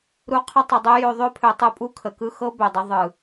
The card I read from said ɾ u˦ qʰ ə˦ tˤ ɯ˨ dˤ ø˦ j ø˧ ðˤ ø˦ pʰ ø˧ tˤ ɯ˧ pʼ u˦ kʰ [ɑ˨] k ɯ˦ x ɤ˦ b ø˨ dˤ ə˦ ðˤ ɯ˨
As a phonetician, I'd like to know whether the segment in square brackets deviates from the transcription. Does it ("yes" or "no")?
yes